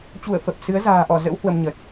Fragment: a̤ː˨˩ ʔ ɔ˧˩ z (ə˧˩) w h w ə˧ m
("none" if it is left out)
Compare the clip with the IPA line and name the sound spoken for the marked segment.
ə̰˧˥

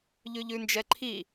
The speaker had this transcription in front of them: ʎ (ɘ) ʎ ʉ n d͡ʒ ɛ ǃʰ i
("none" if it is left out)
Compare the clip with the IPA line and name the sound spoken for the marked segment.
ʉ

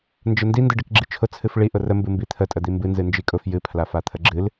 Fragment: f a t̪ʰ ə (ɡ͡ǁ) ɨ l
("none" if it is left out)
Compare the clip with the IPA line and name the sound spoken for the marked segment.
ɡ͡ǁ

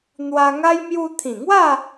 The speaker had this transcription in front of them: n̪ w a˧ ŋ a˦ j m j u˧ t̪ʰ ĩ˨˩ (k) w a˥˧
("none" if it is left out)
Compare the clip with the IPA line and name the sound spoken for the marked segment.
ŋ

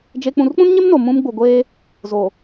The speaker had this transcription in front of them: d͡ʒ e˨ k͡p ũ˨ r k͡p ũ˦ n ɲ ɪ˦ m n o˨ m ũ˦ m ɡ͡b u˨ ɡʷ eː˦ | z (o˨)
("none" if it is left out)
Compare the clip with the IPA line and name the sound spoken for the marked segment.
o˨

